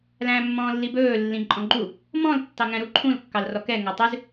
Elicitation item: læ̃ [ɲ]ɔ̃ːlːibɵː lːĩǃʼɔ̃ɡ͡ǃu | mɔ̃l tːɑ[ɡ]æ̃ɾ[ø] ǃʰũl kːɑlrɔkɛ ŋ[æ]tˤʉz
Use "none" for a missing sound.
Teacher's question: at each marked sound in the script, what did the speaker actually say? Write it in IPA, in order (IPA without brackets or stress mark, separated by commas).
mː, ŋ, u, æ